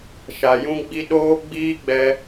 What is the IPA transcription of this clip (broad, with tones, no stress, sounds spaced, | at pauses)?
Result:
ʃ a˨ j ũ˧ ɡ͡b i˧ ɗ oː˦ ɡ͡b iː˦ ɡ͡b ɛ˧